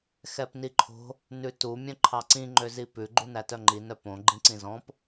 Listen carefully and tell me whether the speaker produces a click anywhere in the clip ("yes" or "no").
yes